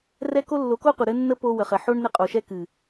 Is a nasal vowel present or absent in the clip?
absent